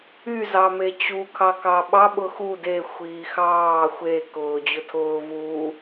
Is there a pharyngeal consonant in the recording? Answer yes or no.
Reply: no